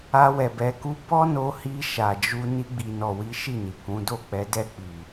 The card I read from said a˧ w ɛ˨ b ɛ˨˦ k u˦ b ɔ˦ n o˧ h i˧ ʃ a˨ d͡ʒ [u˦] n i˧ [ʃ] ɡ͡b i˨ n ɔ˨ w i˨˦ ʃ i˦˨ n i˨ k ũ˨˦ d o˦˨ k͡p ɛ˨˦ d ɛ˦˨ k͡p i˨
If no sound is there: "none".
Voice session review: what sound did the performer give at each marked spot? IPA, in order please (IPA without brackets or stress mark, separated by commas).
u˧, none